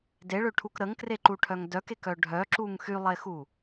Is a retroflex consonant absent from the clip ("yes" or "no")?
no